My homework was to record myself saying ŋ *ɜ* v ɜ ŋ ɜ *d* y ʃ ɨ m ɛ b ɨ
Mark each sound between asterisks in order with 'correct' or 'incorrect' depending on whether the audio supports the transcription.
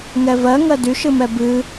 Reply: incorrect: ɛ, correct

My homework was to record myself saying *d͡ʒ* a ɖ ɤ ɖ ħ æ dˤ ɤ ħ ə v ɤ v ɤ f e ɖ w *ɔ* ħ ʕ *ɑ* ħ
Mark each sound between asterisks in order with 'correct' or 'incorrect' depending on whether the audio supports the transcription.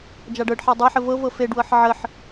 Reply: correct, incorrect: ɤ, incorrect: ə

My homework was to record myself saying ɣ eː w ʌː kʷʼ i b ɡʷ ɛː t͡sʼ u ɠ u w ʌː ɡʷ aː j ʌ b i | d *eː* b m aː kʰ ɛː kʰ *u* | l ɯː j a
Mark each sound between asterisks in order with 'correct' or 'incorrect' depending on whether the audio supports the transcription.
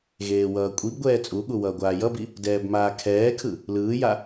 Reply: incorrect: ɛː, incorrect: ɯ

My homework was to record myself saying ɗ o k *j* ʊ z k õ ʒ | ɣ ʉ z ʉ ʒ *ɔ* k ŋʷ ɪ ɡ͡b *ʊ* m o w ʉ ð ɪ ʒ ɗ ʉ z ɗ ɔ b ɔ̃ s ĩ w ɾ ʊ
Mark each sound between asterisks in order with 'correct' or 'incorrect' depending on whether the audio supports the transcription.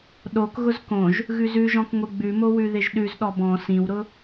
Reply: incorrect: ɣ, incorrect: ɔ̃, incorrect: ʉ

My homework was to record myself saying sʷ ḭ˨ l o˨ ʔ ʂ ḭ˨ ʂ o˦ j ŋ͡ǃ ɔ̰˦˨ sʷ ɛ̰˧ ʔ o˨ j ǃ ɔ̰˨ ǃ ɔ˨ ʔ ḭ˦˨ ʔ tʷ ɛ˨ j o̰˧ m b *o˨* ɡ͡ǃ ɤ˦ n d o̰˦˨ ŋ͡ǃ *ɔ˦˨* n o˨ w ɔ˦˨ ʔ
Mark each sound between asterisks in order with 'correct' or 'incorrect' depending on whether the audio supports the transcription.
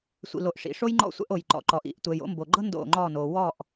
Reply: correct, correct

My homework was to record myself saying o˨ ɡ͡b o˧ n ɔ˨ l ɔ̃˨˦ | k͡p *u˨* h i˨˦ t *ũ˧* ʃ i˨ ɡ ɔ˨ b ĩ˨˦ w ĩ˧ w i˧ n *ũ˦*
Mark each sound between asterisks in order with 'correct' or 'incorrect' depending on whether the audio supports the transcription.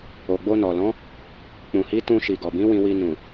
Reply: incorrect: ũ˨, correct, incorrect: ũ˨

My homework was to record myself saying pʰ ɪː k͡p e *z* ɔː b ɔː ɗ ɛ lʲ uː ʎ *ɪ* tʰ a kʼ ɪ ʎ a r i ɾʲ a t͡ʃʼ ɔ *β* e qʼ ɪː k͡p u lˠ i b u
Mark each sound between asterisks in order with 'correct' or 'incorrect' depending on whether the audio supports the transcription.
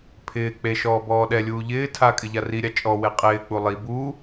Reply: incorrect: ʃ, incorrect: ɪː, incorrect: w

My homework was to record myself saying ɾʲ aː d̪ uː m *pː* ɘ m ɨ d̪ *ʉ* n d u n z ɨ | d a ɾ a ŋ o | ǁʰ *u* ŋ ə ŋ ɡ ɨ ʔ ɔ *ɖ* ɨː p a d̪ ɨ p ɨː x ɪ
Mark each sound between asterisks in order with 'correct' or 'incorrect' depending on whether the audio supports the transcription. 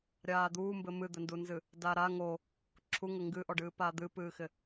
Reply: incorrect: b, incorrect: ɘ, correct, correct

